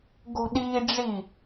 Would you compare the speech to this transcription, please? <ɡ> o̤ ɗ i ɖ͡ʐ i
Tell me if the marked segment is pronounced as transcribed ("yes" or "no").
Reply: yes